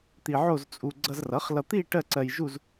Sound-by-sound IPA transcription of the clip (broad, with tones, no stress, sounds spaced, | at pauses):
t̪ i˧ ʕ o˥˧ z t͡sʼ u˧ ɡ͡ǀ ʌ˧ z r ʌ˩˥ χ l ʌ˧ t̪ i˥˧ ʈ ɜ˥˧ ǀ ɜ˧ j ʒ u˥˧ z